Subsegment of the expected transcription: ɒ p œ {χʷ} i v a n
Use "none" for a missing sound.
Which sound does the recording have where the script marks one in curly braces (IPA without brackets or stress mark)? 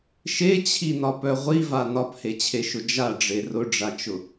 ʁʷ